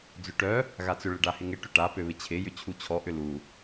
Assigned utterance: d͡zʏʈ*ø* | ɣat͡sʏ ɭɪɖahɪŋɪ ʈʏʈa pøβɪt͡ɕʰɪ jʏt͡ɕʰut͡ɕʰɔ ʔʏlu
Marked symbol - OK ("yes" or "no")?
no